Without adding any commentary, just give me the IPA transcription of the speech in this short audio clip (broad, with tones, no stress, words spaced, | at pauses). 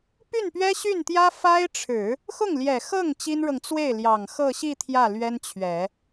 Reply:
py˥˩npɥɛ˥ɕy˥˩nt̪jä˥ fa˥ɪ̯ʈ͡ʂʰɻ̩˨˩˦ | xʊ˥˩ŋljɛ˨˩xɤ˥˩ŋ t͡ɕi˥nɻɤ˨ŋ t͡swe˥˩ɪ̯ljɑ˨˩ŋ xɤ˥˧ɕi˥˧ t̪ʰjä˥˩lɥɛ˥nt͡ɕʰɥɛ˨˩˦